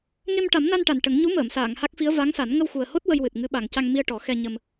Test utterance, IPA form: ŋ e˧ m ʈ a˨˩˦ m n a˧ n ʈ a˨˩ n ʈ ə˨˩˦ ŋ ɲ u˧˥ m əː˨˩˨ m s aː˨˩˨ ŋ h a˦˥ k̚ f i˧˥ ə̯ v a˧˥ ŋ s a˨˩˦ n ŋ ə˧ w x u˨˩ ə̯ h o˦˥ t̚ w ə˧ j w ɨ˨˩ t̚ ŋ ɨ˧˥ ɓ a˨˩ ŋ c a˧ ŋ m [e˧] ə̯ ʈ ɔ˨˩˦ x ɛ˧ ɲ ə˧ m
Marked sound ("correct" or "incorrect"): incorrect